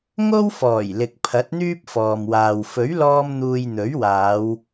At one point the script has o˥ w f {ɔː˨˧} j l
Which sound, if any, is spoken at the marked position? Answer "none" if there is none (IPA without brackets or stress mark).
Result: ɔː˨˩